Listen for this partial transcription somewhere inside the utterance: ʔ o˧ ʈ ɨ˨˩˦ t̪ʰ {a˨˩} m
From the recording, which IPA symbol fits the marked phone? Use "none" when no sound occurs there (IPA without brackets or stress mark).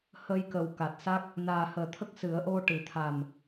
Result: a˨˩